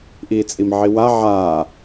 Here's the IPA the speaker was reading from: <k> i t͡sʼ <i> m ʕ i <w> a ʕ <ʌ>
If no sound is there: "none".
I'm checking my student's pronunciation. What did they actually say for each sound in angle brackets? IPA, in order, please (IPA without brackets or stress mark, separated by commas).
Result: ʔ, i, w, a